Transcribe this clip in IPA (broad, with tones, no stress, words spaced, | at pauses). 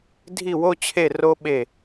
dʱi˦˨wo˦t͡ɕʰe˦˨ ro˦ɓe˦˨